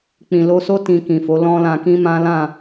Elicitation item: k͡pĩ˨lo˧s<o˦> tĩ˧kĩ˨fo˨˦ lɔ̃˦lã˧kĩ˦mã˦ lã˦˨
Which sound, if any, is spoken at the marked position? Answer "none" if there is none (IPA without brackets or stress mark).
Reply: o˦